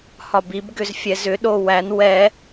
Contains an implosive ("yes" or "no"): yes